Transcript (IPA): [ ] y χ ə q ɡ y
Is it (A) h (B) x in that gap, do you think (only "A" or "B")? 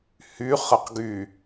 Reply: A